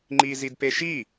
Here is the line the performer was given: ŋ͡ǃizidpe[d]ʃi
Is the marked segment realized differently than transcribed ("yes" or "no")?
yes